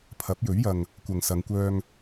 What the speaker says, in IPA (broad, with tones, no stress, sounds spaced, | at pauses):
pʰ ɐ˨˥ p̚ j ɵ˨˥ ɥ j ɐ˨ ŋ | kʷ ɐ˨ ŋ s ɐ˨˧ ŋ kʷ œː˧ ŋ